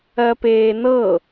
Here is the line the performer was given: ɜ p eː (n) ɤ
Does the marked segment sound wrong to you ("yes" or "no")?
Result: no